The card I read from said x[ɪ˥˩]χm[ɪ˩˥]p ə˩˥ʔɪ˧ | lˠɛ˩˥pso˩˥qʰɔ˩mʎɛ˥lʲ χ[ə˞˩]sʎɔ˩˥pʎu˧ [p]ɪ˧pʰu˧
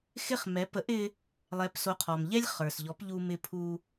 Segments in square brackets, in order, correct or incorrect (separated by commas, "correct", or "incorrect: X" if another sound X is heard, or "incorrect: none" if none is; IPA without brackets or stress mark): correct, incorrect: ɛ˩˥, correct, incorrect: m